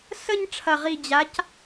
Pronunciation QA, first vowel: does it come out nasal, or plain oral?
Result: oral